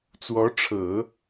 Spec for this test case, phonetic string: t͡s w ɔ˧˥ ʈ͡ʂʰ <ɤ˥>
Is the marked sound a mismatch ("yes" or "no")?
yes